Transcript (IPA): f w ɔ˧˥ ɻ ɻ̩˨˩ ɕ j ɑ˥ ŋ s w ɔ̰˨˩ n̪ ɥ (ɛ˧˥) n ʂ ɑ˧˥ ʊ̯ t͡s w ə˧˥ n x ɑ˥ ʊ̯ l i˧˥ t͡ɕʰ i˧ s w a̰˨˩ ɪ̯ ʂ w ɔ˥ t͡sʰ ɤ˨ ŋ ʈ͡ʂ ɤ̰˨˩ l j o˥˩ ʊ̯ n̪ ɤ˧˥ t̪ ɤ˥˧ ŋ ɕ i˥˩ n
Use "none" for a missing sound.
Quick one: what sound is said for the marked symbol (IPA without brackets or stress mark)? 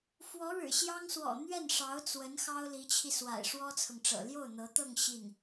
ɛ˥˩